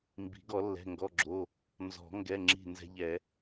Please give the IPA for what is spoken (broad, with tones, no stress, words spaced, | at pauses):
mbi̤˨˩˦ ɡɔ˨˩˦lːɛ̤˩˧˩ŋɡɔ˩˧˩ɡ͡ǁo˩˧˩ | nzɔ̤˨˩˦ ŋɡɛ˩˧˩ŋ͡ǁi̤˧˩ nzɛ̤˦ʎɛ˨˩˦